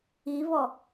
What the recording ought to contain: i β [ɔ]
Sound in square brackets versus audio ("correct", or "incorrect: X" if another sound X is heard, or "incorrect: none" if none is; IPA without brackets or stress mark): correct